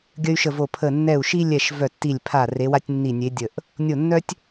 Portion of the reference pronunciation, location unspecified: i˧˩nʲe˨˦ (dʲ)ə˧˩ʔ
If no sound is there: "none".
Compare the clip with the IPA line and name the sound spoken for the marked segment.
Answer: dʲ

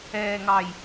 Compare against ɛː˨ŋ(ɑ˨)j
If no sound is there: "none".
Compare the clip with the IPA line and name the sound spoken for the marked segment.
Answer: ɑ˨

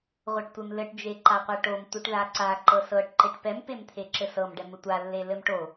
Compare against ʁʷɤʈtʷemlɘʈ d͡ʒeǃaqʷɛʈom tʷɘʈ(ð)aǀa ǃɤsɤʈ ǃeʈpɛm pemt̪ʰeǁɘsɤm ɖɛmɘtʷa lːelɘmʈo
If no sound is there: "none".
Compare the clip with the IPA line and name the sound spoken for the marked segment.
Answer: ð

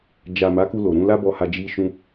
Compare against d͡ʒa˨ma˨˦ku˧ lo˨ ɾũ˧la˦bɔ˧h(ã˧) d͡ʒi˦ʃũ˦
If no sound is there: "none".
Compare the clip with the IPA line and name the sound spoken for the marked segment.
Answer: a˧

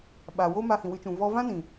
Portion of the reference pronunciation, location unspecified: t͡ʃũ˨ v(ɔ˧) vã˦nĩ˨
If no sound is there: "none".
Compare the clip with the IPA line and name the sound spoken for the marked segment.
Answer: ɔ˧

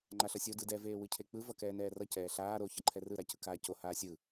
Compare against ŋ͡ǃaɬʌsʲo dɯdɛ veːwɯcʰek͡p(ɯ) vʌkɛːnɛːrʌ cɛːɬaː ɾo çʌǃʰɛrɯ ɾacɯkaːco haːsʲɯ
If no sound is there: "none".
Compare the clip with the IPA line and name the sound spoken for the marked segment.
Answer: ɯ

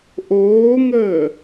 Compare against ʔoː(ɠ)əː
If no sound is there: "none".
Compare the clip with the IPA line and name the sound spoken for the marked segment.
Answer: ŋ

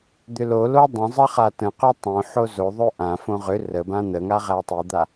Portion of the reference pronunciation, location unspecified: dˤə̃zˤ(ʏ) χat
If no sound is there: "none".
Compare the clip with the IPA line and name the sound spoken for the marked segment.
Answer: ə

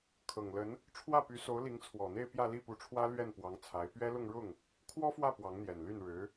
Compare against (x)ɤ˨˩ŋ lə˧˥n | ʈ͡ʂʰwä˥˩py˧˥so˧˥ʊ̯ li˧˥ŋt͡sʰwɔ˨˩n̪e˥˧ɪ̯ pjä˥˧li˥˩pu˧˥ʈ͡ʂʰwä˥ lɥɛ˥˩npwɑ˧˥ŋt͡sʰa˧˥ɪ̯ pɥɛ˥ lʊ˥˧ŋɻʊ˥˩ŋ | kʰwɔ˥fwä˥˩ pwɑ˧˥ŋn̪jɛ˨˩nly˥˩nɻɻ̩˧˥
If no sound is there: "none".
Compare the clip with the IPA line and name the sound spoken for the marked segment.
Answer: kʰ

